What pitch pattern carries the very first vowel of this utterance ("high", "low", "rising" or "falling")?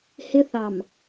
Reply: high